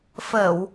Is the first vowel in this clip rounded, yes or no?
no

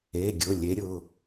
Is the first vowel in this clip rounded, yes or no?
no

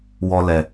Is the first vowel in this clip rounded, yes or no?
yes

